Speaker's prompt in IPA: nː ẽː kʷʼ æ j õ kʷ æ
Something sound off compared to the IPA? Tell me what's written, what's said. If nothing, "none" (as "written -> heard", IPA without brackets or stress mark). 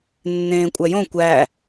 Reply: none